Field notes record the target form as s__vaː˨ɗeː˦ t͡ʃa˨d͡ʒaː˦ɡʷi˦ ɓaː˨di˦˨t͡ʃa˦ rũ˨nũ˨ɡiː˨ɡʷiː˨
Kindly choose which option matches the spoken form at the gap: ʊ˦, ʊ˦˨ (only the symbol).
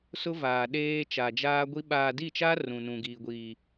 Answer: ʊ˦